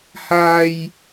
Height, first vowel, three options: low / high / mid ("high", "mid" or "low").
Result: low